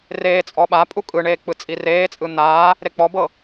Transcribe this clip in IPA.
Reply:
r eː t͡sʼ ɔ ɓ a pʼ u kʼ ɯ ɳ eː k͡p ɯ t͡sʼ i r eː t͡sʼ ɯ n̪ aː | ɾ e k͡p ɔ b ɤ

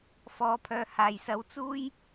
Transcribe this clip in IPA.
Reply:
f ɔː˨˧ pʰ œː˨ h aː˨˩ j s ɐ˨˧ w t͡s uː˥ j

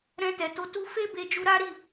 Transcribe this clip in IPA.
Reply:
ɾ ɛ̃˧ t ɛ˨ t o˧ t u˦ f e˦ b e˧ d͡ʒ u˧ ɾ a˦ ɾ i˦˨

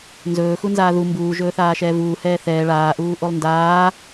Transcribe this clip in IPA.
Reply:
n z ɵː x u n z aː ð u m b uː ʒ ɵː θ aː ʃ ɛː v uː h ɛː θ ɛː ɭ aː ʔ uː ʔ o lˠ n d aː

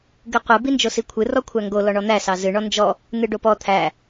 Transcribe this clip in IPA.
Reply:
ɡ ɨ qʷ ɨ b i n d͡ʒ o s i kʷʰ ɨ r ɔ kʷʰ æ ŋ ɡ o l ɔ ɳ ɔ n̪ æ s ɑ z ɨ ɳ ɔ n d͡ʒ ɔ | n̪ ɨ ɖ o p ɔ t̪ʰ æ

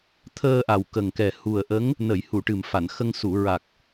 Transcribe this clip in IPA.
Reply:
t̪ʰ əː˧ ʔ a˨˩ w k ə˨˩ ŋ k ɛ˨˩ h u˨˩ ə̯ ʔ ə˧˥ ŋ | n ə˨˩˨ j h u˨˩˨ ʈ ɨ˨˩ m f a˨˩˨ n x ə˧ ŋ s u˨˩˨ ɹ a˨˩ k̚

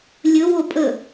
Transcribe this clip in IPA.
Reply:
lʲ ɵ w o pʼ ə

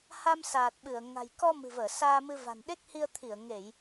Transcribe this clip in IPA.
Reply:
h a˧ m s aː˨˩ t̚ ɓ ɨ˧˩ ə̯ ŋ a̤˨˩ j k ɔ˧ m ɨ̤˨˩ v əː˧˩ s aː˧ m ɨ˧ v a̤˨˩ n ɗ e˦˥ k̚ h i˧ ə̯ t̪ʰ i˧˩ ə̯ ŋ e˧˩˨ j

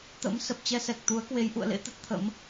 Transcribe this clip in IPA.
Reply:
t̪ ə̰˧˥ m s ə˨˩ p̚ t͡ɕ ɛ˧ s ɛ˨˩ k̚ t̪ u˨˦ ə̯ k w e˨˦ j ʔ ṵ˧˨ ə̯ l ḛ˧˥ t̪ ə˦˥ t̚ t̪ʰ ə̰˧˥ m

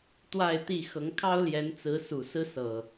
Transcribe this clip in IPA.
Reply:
t̪ w a˥˨ ɪ̯ t̪ i˥˨ x ɤ˨˦ ŋ kʰ ɑ˦ ʊ̯ l j ɛ˨˦ n t͡s ɹ̩˨˦ s u˨˩ s ɹ̩˦ s ɤ˨˩

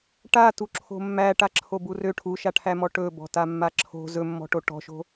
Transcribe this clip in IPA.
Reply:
ʈ a t u ǁʰ o̤ mː æ ʈ a ǁʰ o b u r ø ʈʰ u ʃ a ʈʰ æ m ɔ ʈ ɵ b ɔ̤ t a mː a ǁʰ o̤ z ɵ mː ɔ̤ ʈ o ʈ ɔ̤ ʃ o̤

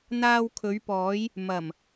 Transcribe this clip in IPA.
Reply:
n̪ aː˧ w kʰ ɵ˨˧ ɥ p ɔː˨˧ j | m ɐ˨˩ m

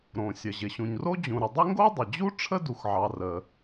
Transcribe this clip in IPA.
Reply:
ɾ õ˩ sʲ ə˩ ʑ ɪ˩ ɕ ũ˩ ɲ r o˥ d͡ʑ ũ˩ ɾ ɪ˩ dˤ ɪ˥ ŋ ɡ o˥ dˤ ə˩ d͡ʑ u˥ ʈ͡ʂʰ ə˥ d u˩ x ʕ ɑ˩ r ə˩

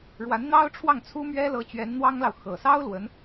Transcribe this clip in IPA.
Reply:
ɻ w a˧˥ n n̪ ɑ˥ ʊ̯ ʈ͡ʂʰ w ɑ˥˩ ŋ t͡sʰ u˥ m ɥ ɛ˥ l ɤ˧˥ t͡ɕ ɥ ɛ˧˥ n n̪ w ɑ˥ ŋ l ɑ˨ ʊ̯ x ɤ˨˩ s ɑ˥ ʊ̯ l w ə˧˥ n

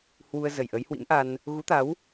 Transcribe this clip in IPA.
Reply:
h w u˧ ə̯ z ə˧˩ j ʔ ə˨˦ j h w ḭ˧˥ m ʔ a˧ n | ɣ u˨˦ t̪ a˨˦ w

